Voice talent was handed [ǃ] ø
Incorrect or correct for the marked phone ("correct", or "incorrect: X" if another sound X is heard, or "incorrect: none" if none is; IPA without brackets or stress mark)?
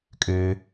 incorrect: kʼ